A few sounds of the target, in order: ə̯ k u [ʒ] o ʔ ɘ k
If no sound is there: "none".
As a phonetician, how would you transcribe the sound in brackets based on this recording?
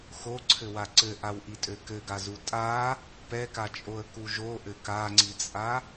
ʒ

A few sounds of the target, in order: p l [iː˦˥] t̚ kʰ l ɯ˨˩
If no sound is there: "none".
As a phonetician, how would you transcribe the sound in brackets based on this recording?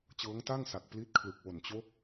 i˦˥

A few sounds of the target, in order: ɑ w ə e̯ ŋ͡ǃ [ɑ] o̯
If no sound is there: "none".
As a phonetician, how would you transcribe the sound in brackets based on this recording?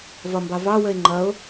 ʌ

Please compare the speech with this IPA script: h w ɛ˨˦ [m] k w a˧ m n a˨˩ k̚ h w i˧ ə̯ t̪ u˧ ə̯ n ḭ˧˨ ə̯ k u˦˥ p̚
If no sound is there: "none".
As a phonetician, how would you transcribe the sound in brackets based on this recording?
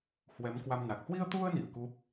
m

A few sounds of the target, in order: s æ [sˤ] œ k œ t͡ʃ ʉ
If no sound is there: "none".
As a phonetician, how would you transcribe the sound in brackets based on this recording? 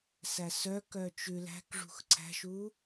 s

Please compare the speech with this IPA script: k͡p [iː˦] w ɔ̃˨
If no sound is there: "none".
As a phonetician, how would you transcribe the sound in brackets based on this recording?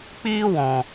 iː˦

